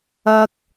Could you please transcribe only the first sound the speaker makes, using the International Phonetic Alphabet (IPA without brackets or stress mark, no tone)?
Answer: ɐ